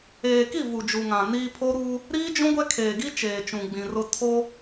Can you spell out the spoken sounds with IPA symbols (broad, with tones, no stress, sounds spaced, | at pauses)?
eː˨ k i˦˨ v u˨ d͡ʒ u˨ ŋ ã˨ n iː˦ pʰ o˦ ɾ uː˦ | ɾ iː˦ d͡ʒ ũ˦ ɡʷ ɛ˦ kʰ eː˨ ɡ i˦ t͡ʃ eː˨ t͡ʃ ũ˨ ɡ͡b ĩ˨ r ʊ˦ tʰ o˦